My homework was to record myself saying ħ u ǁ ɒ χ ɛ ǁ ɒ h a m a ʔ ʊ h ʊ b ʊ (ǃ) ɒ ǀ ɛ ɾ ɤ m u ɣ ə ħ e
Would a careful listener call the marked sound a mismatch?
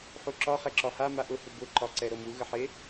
no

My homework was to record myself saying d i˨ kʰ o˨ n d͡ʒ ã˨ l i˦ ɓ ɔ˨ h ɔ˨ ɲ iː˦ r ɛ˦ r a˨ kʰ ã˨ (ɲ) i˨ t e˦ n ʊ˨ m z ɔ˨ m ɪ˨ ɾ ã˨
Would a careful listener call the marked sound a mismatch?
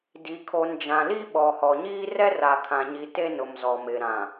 no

